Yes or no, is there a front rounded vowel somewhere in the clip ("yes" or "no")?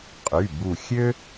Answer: yes